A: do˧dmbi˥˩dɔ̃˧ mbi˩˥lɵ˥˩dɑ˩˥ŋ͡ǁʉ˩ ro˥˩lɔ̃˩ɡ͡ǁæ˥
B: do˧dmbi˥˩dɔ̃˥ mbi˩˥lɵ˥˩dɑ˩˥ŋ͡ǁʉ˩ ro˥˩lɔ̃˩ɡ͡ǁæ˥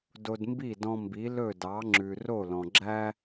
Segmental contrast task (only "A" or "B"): A